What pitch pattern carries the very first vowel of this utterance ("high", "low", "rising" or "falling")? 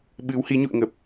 rising